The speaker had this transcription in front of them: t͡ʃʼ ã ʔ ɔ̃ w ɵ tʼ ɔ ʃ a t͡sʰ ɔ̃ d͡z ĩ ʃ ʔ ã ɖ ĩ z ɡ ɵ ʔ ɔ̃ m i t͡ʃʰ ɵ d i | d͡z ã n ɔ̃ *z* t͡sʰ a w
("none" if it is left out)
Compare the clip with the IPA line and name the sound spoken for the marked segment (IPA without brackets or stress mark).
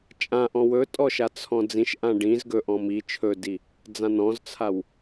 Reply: z